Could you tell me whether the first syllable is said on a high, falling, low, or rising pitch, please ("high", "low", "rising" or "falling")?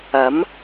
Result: rising